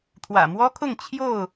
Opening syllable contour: low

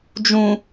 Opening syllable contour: low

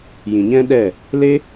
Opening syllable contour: low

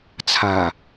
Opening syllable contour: low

